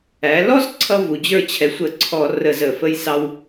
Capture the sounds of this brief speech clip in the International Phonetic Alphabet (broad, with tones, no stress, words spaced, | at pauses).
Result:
æ˩˧lɔ˦z ǀʰʌ˦vu˩˧d͡ʑə˞˥˨ t͡ɕʰɛ˩˥sʷə˧˩˧ǀʰɔ˧˩˧ rə˧˩˧zə˧˩˧fə˦j sɑ˦w